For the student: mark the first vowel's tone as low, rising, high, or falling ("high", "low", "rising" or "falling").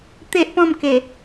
high